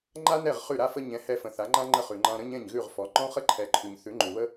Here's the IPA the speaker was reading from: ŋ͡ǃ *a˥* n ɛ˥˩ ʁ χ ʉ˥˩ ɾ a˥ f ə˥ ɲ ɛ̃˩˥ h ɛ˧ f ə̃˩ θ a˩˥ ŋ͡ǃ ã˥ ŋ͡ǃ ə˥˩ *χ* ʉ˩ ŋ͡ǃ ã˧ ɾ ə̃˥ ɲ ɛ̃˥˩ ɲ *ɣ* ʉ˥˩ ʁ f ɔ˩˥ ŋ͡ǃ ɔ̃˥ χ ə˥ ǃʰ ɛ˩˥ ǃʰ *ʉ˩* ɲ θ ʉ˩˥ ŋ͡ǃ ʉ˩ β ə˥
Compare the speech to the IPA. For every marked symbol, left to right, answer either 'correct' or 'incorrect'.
correct, correct, correct, correct

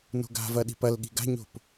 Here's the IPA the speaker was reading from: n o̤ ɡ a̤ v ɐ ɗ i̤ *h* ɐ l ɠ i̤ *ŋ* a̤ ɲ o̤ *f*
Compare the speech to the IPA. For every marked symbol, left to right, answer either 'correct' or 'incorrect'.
incorrect: p, incorrect: ɡ, incorrect: p

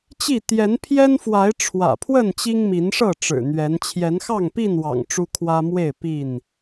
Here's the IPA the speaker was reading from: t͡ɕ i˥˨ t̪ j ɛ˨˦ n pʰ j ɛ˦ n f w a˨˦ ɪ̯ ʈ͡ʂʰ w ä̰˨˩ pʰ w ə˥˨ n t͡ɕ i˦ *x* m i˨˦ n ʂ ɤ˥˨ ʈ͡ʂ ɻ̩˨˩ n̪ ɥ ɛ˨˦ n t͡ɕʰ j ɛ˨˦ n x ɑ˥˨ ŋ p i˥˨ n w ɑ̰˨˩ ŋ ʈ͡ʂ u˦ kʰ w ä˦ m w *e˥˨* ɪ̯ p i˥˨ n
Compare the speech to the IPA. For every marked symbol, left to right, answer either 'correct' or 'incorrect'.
incorrect: ŋ, correct

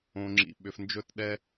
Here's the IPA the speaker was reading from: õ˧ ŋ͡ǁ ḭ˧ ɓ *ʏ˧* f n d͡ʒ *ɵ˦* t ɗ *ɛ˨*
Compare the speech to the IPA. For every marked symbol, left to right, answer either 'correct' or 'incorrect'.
correct, correct, incorrect: ɛ˦

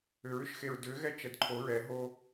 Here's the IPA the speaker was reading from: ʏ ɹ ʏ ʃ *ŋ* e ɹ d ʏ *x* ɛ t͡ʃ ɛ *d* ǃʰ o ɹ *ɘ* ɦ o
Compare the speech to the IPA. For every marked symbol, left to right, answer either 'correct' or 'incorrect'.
incorrect: x, incorrect: ɣ, correct, incorrect: ɛ

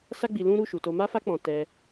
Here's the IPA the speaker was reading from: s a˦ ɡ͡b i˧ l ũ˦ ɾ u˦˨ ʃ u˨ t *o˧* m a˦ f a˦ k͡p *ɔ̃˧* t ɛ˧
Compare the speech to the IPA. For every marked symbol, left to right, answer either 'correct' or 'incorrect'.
correct, correct

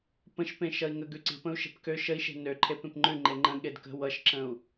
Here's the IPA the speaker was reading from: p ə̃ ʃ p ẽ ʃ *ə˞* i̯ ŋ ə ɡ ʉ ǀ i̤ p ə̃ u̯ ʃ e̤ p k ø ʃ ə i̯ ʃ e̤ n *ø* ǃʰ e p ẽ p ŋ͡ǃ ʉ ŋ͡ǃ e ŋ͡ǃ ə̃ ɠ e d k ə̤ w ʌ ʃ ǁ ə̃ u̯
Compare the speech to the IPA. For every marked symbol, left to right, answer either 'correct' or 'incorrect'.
incorrect: ʌ, correct

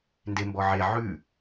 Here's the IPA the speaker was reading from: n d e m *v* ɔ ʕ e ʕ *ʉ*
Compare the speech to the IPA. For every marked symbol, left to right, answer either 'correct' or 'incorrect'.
incorrect: b, correct

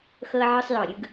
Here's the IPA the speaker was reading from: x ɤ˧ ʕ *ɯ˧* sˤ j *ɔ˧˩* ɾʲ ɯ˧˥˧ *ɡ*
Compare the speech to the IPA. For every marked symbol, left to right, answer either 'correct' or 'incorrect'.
correct, correct, correct

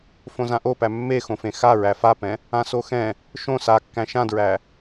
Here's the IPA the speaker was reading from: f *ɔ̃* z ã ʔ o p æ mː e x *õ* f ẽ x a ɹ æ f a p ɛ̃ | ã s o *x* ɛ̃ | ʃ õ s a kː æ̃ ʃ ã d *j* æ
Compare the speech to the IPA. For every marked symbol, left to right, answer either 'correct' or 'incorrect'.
incorrect: õ, correct, correct, incorrect: ɹ

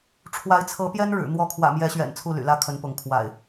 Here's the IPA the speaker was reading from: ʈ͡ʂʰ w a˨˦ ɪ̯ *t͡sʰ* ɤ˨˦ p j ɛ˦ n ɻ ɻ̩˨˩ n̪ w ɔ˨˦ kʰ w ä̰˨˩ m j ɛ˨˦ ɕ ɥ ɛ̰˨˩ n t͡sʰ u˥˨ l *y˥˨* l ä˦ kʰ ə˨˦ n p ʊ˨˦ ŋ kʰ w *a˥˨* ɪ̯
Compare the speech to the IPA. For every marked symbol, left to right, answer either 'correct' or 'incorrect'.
correct, incorrect: y̰˨˩, incorrect: a̰˨˩

